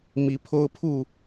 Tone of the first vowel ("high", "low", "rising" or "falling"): rising